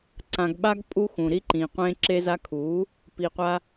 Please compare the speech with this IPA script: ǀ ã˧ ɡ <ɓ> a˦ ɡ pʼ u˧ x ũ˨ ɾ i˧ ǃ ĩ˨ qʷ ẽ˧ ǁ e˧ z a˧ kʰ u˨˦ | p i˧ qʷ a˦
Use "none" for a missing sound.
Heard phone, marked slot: ɓ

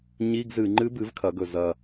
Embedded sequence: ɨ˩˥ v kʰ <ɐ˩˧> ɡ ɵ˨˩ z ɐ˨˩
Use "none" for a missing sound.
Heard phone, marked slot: ɐ˩˧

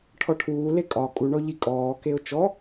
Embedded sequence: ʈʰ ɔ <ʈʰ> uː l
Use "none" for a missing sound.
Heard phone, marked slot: ʈʰ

